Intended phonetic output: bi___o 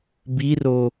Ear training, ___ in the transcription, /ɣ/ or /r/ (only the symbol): r